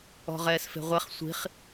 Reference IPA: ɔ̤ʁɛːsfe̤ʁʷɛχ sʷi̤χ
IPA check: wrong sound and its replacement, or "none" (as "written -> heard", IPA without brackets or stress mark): none